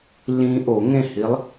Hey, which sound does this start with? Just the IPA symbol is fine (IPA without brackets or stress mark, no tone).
lː